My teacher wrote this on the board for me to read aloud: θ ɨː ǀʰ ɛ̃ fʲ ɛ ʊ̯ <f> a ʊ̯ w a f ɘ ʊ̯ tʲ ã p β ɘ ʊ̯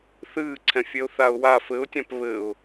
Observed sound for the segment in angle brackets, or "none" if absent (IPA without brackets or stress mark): θ